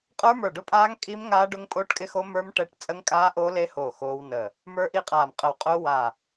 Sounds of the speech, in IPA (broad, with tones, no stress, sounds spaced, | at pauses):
qʼ ə˞˦˥ m ə˞˧˩ ɖ ʊ˦˥ pʼ aː˦˥ ŋ kʼ i˦˥ m ŋ aː˦˥ ɖ ʊ˦˥ ŋ pʼ oː˦˥ ʈ kʼ ɪ˦˥ x o˦˥ m ə˞˦˥ m ʈ ɛ˦˥ ʈ t͡sʼ ə˦˥ ŋ kʼ aː˦˥ ʔ o˦˥ l e˦˥ h oː˧˩ x oː˦˥ w n ə˧˩ | m ə˞˦˥ ʔ i˦˥ qʼ aː˧˩ m qʼ ə˧˩ w qʼ ʊː˦˥ w a˧˩